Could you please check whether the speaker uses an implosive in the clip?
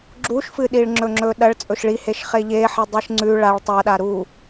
yes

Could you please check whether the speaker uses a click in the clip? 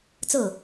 no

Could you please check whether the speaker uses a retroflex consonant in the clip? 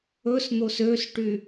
yes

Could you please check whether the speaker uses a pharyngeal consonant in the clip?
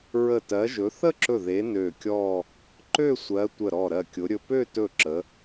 no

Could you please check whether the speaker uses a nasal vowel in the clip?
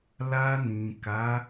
yes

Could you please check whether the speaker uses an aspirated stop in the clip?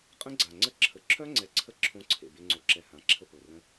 yes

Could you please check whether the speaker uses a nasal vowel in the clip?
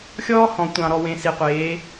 yes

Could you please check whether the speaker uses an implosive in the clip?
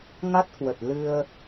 no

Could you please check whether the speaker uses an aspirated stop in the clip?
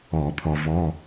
yes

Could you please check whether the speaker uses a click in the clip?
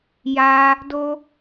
no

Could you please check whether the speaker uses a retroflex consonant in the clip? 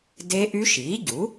no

